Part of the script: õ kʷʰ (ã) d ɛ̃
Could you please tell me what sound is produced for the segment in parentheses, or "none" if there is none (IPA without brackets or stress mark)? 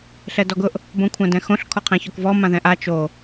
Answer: ã